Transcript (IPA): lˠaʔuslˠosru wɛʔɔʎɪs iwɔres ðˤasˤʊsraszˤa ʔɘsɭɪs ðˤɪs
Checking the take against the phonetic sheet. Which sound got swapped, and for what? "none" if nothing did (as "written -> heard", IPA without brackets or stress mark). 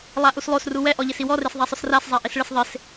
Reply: ɘ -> e